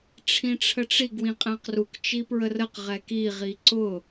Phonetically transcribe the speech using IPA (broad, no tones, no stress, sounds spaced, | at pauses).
ʈ͡ʂʰ ĩ ʈ͡ʂʰ ə ʈ͡ʂ i ɡ w ĩ qʼ æ̃ q r u k t͡ʃ i p ɹ ə r ə q ʁ ɛ k i ʁ i ǀ ʊ